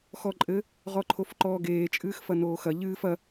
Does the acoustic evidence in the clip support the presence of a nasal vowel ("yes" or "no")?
no